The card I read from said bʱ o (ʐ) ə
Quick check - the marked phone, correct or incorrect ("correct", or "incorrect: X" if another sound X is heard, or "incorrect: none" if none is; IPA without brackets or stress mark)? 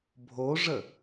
correct